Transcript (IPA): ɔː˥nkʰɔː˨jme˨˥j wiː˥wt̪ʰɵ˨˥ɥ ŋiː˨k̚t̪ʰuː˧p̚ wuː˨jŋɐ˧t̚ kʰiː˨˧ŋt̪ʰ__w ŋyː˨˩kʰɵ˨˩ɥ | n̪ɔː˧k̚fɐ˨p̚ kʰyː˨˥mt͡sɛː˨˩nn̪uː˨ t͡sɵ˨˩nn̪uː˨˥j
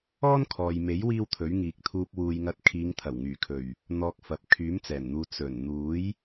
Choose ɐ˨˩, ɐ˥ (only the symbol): ɐ˨˩